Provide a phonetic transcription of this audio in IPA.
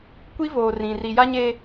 kʷ i˦ v oː˨ r ĩ˨ r i˨ j a˦ ɲ e˦

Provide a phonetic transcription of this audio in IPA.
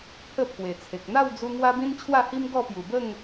pʰ ə˥˧ pʰ w e˨˩ t͡sʰ e˨ k̚ n̪ a˥˧ w d͡z u˧ ŋ w a˦ b ĩ˦ n t͡ɕʰ w a˥˧ h i˦ m ɡ ɔ˥˧ p j u˨˩ b ə˥˧ ŋ

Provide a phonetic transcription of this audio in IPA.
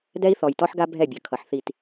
d ɛ˦ i̯ θ ɔ˨ j t ɔ˦ ħ ɡ a˦ bʱ ɛ˦˨ bʲ ʌ˨ kʰ ʌ˨ ħ θ i˦˨ t

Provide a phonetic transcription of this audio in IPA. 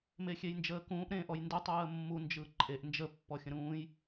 m e xʲ e j n d͡ʒ əː k ũː ʔ ɾ ẽ ʔ ɔ j n d ɯ tˤ ɯː ə̯ mː u n d͡ʒ ɯ ǃʼ e ʔ n d͡ʒ ə pː ɔ xʲ ə̃ ɾ ũː j

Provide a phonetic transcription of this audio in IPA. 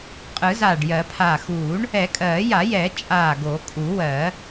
qʼ ɯ˨˩˦ z aː˧˩ ɖ j ɜ˨˩˦ pʰ aː˧˩ x uː˨˩˦ ɳ | ɛ˨˩˦ kʼ ɜː˨˩˦ j a˨˩˦ j ɛː˨˩˦ t͡ʃʼ aː˧˩ ɡ o˨˩˦ kʼ u˨˩˦ w ɜ˨˩˦

